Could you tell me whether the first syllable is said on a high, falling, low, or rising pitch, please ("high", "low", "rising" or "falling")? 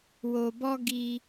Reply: low